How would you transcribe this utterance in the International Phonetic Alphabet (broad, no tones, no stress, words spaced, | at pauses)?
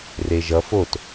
reʒʌ fot